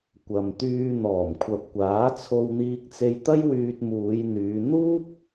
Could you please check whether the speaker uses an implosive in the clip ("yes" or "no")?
no